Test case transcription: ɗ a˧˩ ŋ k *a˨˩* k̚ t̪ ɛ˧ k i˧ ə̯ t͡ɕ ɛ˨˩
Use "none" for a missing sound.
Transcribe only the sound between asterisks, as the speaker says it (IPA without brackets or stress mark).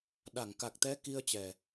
a˨˩